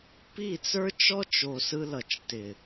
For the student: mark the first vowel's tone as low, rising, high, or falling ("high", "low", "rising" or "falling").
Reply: falling